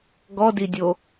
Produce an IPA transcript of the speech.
ɡ ɔ d i dʲ o

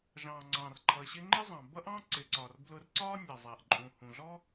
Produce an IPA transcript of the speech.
ʒ ɑ̃ː˩ ŋ͡ǀ ɑ̃˩ r ǃʰ ʌ˩ ɕ ɪ˧ ŋ͡ǃ ɪ˥ zˤ ɑ̃˩ b ʌ˥ ʔ ɑ̃˥ ǀ ɪ˩ ǀ ɒ˩ r b l ʊ˧ r ǀ ɒː˥ nʲ ɑ˩ zˤ æ˩ ʔ ǃʼ ũ˩ h ũ˩ ɮ ɔ˥

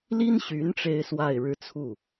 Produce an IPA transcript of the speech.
l i˥ n ɕ y˧˥ n ʈ͡ʂ e˥ ɪ̯ s w a˥˧ ɪ̯ ɻ ɻ̩˥˧ t͡sʰ u˥˩

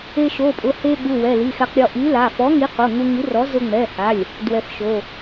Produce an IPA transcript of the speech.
e˧ ʃ o˩˧˩ pʼ ʊ˩˧˩ h e˧ ɠ u˩˧˩ w ɛ˩˧˩ l i˩˧˩ x ɛ˧ q ɾʲ ɔ˧ ʔ i˨˥ l a˩˧˩ f ɔ˨˥ ŋ i˨˥ q o˩˧˩ ŋ u˧ ŋ i˨˥ r ɔ˨˥ z ʊ˧ ŋ͡m ɛ˩˧˩ h a˩˧˩ lʲ | d w ɛ˧ f ʃ o˩˧˩

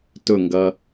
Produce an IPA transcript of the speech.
t ʊ ŋ ɡ ʌ

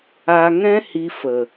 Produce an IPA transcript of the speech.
a˧ ŋ ɛ̃˦ h i˧ f ə˨

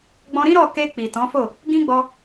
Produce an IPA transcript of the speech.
ɡ͡b ɔ̃˧ ɾ ĩ˦ ɾ ɔ˦˨ k e˧ k͡p i˨ t ɔ̃˨˦ f o˦˨ | ɡ ĩ˦ ɡ͡b ɔ˧

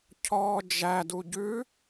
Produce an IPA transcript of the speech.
cʰ ɔː d͡ʒ æ d u ɟ ʉ

